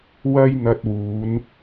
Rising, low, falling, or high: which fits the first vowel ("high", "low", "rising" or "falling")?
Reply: high